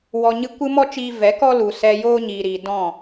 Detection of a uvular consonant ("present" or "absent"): absent